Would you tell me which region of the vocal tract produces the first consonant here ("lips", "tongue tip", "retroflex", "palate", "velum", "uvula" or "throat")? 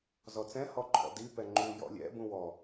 tongue tip